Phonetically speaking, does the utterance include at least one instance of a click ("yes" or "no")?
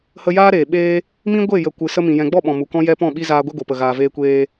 no